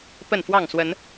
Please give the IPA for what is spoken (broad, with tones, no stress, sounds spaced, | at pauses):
p ə˥˨ n f w ɑ˥˨ ŋ s w ə˨˦ n